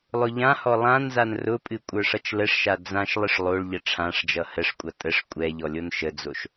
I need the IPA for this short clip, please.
lˠ ʊ ʎ ã h ɔ lˠ ã n z a n r ʊ pʼ ɨ kʷʼ ə˞ ʂ ʌ t͡ʃ l ə ʂ ʃ a d͡z ã ʃ lˠ ɨ ʂ lˠ o ɭ ʎ ə ʈ͡ʂʰ ã ʂ d͡ʒ ʌ h ə ʂ kʷʼ ʌ tʼ ə ʂ kʷʼ ɛ ʎ ɔ lʲ o n ʃ ə d͡z o ʃ

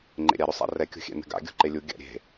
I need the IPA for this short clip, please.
ŋ͡ǃ ḛ ɾʲ a ɾ ɵ sˤ a̰ r ɛ kʲ o̤ xʲ ɛ̰ n ɛ̤ ɡ a̰ ɡʲ o̤ ǃ e lʲ u ɡʲ a̰ ɾʲ e̤

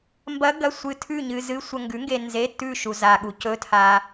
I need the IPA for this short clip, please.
m b ɐ˦˥ ɡ ɐ˧˥˧ sʷ ɨ˧ tʰ ʉ˥˧ ɲ ɨ˧ z ɨ˦˥ sʷ ɐ˧ ŋ ɡ ʉ˨˥ ŋ ɡ e˧ n z e˧˥˧ tː ʉ˥˧ ʃ u˧ z a˧ ɠ u˨˥ c ɵ˧˥˧ tʰ a˧

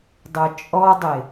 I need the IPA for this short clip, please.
dˤ œ t͡ʃʼ ɔ dˤ ɪ

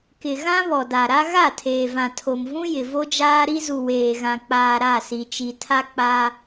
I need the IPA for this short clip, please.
k ɪ˨ ɣ ã˦ β ɔ˨ d a˨ ɾ a˦ ɣ a˦˨ tʰ eː˨ v ã˨ tʰ o˨ m v ũ˦ j ɪ˨ v o˦ d͡ʒ aː˦ ɾ i˦ z u˨ w eː˨ ɣ ã˨ k͡p aː˨ ɾ a˦˨ s i˨ t͡ʃ i˨ tʰ a˦ k͡p a˦

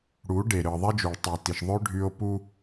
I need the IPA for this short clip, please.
ɽ u˨˦ ɖ e˨ ɾ ɯ˨ ðˤ e˦ d͡ʒ u˨ ɭ tˤ y˨ t i˨ ʃ ðˤ ø˦ ɖʱ y˦ o̯ p u˦

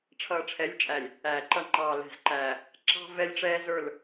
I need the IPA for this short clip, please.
ʈ͡ʂʰ ʌː˨ ʈ͡ʂʰ ɛ˨˦ lʲ t͡ʃʼ æ˨ lʲ | æː˨ ǃ ʌ˦ ŋ͡ǃ ɑː˨ l ɛ̤˨ z ǃ æː˨ | ǁ ɑ̤˦ v ɛ˦ lʲ ʈ͡ʂ ɛː˦ z ə˞˦˨ l

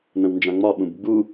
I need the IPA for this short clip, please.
n ə̃ w n d͡ʒ ã ŋ͡m ɒ ɓ ũ b ɡ͡b u

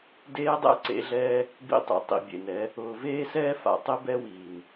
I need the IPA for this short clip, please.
d eː˧ dˤ ɛ̰˧ ǀ ḛ˨˦ ɮ ɛː˦ | b ḭ˧ tˤ ḛ˨ tˤ ḭ˨ bʲ ḛ˨ n ɛ˨˦ | ʊː˨ v eː˦ s ɛː˦ f a̰˨ tˤ ɪ˦ b ɛ˦ w iː˨ n

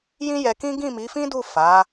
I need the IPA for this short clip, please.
j ĩ˦ j ɛ˧ k ĩ˦ ɡ ĩ˦˨ m i˨˦ f ĩ˦ d u˦˨ f a˨˦

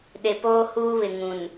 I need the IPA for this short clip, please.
ɗ e˨ p oː˦ h uː˦ β ɪ˨ ŋ ũ˨ n

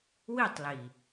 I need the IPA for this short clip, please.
w i˦˨ tˤ l i˨

